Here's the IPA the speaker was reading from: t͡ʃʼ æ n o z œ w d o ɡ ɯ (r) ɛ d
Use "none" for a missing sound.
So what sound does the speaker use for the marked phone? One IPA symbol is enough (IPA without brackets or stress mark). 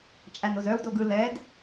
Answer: l